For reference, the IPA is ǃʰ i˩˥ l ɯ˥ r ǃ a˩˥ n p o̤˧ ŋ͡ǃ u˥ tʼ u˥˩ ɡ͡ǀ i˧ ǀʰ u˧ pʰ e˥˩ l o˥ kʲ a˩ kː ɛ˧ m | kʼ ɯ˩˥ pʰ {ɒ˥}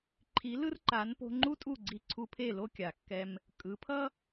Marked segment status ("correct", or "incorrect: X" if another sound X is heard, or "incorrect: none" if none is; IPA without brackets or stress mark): incorrect: ʌ˥